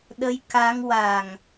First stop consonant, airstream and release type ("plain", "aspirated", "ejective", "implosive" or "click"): implosive